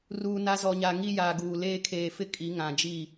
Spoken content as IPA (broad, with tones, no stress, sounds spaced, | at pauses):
r uː˨ n a˦ z ɔ˨ ɲ a˨ ŋ i˦ j aː˨ ɡ uː˨ l eː˦ kʰ eː˨ f ɪ˦ kʼ i˨˦ ŋ ã˨ d͡ʒ i˦˨